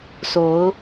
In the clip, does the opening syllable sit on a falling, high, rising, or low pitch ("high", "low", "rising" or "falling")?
rising